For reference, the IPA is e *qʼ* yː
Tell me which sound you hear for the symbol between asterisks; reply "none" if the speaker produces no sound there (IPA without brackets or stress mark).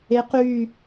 q